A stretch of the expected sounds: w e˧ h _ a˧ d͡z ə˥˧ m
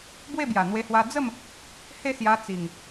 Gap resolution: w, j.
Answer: w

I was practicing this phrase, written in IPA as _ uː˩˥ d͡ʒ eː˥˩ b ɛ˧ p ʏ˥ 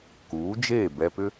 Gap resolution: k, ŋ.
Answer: k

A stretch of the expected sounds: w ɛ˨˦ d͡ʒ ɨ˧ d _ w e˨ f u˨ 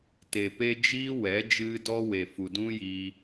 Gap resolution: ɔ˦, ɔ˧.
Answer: ɔ˧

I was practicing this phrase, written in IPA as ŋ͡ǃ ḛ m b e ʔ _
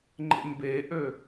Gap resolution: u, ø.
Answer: ø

